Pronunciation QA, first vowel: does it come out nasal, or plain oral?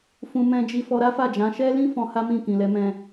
nasal